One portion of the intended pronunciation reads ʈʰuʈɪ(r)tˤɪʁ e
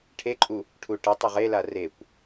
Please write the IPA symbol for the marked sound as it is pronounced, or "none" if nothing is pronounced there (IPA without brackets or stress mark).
none